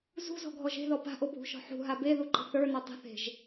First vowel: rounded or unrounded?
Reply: rounded